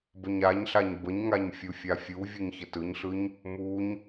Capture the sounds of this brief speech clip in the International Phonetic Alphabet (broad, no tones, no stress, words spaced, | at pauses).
bəɲaɲɬaɲ bəɲŋaɲ fʲufʲafʲuvʲɯɲ çətɯɲɬɯɲ | muɲ